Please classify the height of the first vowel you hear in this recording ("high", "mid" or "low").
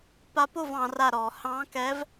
low